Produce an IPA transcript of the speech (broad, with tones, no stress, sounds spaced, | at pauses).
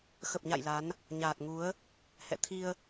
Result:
x ə˨˩ p̚ ɲ a̰˧˨ j l a˨˦ n | ɲ aː˨˩ t̚ ŋ u˨˦ ə̯ | h ɛ̰˧˨ t̪ʰ i˧ ə̯